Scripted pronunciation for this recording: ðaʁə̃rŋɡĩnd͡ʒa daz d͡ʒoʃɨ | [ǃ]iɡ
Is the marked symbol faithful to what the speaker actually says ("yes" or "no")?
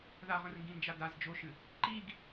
yes